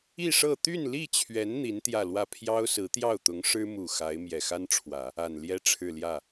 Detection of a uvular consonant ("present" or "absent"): absent